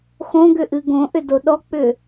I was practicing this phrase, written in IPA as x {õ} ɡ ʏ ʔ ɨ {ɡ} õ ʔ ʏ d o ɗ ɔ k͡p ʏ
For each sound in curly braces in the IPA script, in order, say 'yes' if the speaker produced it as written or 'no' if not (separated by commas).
yes, yes